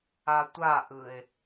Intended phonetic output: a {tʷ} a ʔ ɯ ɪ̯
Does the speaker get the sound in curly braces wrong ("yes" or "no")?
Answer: no